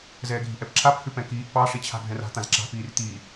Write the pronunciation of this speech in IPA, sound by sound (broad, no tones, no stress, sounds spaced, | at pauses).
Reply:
z ɛː ɡʱ i̤ ʔ ɛ p ǁʰ a p h ʉ p ɛ̃ k iː ʔ p ɑ ʂ i t͡ɕʰ a̤ ɡʱ ɛ̃ r a̤ t̪ ã z ǁ a̤ p iː r t̪ iː